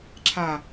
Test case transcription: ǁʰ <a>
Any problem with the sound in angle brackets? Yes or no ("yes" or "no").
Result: no